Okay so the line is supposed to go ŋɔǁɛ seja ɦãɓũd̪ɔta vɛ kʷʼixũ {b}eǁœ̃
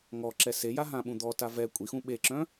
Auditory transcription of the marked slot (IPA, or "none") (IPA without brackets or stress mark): ɓ